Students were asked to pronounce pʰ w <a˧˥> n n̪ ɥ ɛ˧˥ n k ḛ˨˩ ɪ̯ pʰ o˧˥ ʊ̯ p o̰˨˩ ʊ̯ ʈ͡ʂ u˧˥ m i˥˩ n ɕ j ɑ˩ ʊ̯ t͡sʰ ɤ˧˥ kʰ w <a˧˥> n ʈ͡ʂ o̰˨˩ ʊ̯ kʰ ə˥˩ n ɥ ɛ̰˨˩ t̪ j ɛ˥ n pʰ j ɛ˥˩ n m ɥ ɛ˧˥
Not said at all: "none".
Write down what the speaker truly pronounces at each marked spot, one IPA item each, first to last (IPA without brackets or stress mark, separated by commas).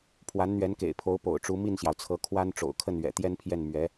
a˧˥, a˥